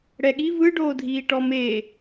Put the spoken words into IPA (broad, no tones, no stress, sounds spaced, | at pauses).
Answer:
ɽ ɛ ɠ i v ɯ ɖ oː dʱ iː ʈ ɔ m eː